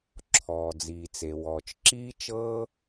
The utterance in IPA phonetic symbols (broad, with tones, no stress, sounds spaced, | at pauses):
ǁʰ ɔː˩ d͡z iː˩ t͡s e˩ w ɔː˩ t͡ʃ ǁ iː˥ t͡ʃ ɤː˥